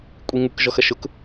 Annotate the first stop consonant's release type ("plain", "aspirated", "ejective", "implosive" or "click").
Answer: ejective